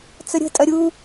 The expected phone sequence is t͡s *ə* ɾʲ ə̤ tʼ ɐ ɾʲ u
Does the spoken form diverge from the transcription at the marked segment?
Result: no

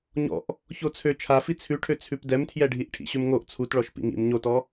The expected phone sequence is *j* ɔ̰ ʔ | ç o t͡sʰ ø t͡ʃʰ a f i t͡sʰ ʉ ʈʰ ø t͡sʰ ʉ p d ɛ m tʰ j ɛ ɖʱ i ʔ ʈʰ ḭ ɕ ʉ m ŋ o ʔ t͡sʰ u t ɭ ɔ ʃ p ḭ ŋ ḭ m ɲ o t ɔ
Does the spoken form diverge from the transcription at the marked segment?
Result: yes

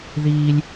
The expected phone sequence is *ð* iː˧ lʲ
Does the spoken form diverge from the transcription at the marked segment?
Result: no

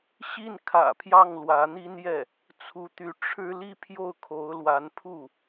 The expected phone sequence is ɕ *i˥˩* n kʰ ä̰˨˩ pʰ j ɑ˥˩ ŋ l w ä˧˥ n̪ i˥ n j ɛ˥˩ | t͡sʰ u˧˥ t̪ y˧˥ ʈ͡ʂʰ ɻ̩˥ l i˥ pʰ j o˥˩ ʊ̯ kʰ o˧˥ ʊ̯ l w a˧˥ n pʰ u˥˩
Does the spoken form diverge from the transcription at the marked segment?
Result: no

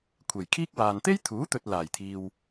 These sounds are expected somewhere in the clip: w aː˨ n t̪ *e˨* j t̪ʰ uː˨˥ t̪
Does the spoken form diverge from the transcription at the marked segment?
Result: yes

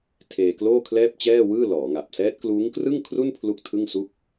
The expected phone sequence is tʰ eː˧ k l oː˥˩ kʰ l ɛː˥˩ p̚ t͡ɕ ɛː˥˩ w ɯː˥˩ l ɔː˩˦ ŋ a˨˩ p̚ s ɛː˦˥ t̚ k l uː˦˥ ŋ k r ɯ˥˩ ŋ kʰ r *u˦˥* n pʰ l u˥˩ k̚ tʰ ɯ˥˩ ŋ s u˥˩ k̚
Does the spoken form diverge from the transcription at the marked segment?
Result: yes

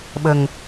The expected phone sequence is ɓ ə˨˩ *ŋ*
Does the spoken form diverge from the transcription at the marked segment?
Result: no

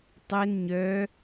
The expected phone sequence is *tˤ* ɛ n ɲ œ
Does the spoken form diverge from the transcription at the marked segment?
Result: no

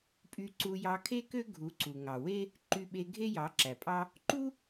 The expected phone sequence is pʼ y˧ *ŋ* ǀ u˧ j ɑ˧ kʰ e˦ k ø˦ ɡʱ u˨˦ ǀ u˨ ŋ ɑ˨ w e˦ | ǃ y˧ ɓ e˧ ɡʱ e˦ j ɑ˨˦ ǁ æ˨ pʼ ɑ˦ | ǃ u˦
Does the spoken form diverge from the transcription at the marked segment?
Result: yes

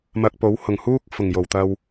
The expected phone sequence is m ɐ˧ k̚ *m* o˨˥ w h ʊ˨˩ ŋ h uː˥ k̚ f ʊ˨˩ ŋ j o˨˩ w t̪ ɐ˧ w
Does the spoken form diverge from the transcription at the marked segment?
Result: yes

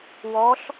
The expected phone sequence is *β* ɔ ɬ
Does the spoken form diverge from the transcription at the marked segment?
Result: yes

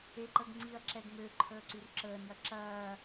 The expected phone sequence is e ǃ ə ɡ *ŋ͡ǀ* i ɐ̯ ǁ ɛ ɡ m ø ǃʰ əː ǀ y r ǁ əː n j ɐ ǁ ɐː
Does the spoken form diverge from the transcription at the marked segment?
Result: no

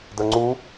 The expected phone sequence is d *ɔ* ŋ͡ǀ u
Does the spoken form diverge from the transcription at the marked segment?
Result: yes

